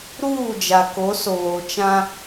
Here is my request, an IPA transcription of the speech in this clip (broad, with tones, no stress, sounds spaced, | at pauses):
ɾ uː˦˨ d͡ʒ a˨ k o˨˦ s oː˨ t͡ʃ ã˦